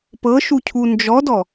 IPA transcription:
p ɤ ʃ u cʰ u n d͡ʒ ɔ d ɔ

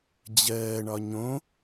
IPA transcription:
d͡ʑ ɜː ɳ ɒ ɲ õ

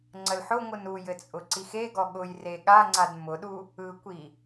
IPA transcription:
ŋ͡ǀ ə l ħ ʊ ŋʷ ɯ n u j ɘ t͡sʼ ʊ ǀ i x e ɡ ɔ ɠ ʊ j r e ɠ a ŋ͡ǀ a d m ʊ ɗ u | ɯ kʷ i

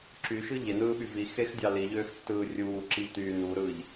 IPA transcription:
ǁ y ʃ ɯ ʎ e n ɯː ɓ y v i x e x dʲ ɑ l i ʎ øː x tː ɯː rʲ uː ǁ i ʎ t yː n u ɾ ɯː ʎ

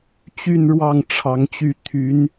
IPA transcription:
t͡ɕ y˥˧ n ɻ w ɑ˥˩ ŋ ʈ͡ʂʰ ɑ˧˥ ŋ t͡ɕ y˥˩ t̪ʰ y˧˥ n

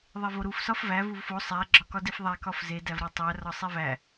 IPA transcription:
ðˤ e v o ɾ u f s ɒ f v æ v u v f o sˤ æ ɡ͡ǁ ɒ k ɒ d i f ðˤ æ k ɒ f z e d æ v ɾ ɒ tˤ æ r ɒ sˤ i v æ

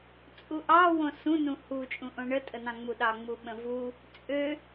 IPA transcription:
t͡sʼ u ʔ ɑ w õ s ũ n ũ h u t͡ʃʼ ũ ʔ õ ɳ ə tʼ ə n ɑ̃ ŋ͡m u ɗ ɑ ŋ͡m u ɓ ə̃ v u | t͡sʼ ø

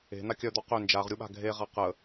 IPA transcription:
e̤ n̪ a kʲ œ d̪ ɔ q ø n d͡ʒ a ʁ ɾʲ u ɓ a̤ ɡʱ e ʁ a q ə

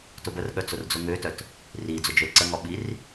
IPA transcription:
t ʊ b ə r ɠ œ t͡s ʊ r d͡z ʊ ŋ ø t œ t | r i d͡z ʊ d͡ʒ ø l ǀ ə ŋ ɔ ɓ i r

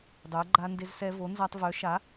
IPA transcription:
dˤ œ˩˥ ɡ͡ǃ a˧ n d e˧ z s ɛ˧ v o˩˥ n z a˧ tˤ v œ˩˥ ʃ a˩˥

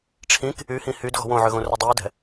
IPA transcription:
ʈ͡ʂʰ ĩ k | y h ĩ h y d ɣ ɔ̤ w õ ʕ ø ɣ õ r ʏ dˤ i u̯ d ɛ̤

